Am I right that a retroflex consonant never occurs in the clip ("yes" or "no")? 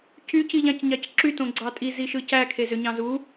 yes